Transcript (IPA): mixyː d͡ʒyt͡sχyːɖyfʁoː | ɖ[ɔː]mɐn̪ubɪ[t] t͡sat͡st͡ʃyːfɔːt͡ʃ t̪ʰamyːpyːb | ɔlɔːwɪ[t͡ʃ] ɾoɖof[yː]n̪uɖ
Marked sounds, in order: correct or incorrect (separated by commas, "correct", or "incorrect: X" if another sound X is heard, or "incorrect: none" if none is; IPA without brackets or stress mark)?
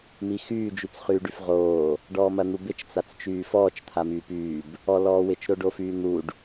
correct, incorrect: t͡ʃ, correct, correct